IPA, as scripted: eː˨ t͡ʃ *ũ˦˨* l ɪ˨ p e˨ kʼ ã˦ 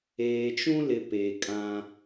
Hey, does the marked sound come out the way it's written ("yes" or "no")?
no